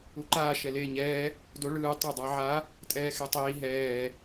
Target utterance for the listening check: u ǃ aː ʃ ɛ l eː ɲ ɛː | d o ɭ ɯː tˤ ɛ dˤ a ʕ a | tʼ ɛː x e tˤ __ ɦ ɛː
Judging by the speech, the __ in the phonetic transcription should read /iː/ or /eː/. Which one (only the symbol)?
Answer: iː